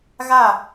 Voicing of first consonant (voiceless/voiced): voiced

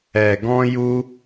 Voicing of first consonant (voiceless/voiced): voiced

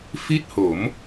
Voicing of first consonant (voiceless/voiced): voiceless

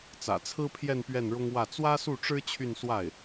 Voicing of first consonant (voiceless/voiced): voiceless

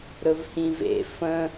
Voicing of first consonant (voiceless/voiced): voiced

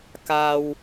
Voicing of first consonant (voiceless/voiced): voiceless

